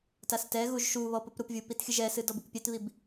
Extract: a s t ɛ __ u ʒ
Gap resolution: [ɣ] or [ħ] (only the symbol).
ɣ